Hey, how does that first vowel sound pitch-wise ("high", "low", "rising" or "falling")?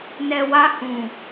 low